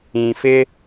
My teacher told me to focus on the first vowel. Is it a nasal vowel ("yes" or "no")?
yes